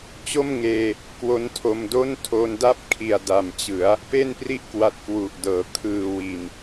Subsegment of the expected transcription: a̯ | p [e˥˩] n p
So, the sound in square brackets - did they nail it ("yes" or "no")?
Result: yes